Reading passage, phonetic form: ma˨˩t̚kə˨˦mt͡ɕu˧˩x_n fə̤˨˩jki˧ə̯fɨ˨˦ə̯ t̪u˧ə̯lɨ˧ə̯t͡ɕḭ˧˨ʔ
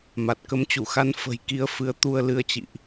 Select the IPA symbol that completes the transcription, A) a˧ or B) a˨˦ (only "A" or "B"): A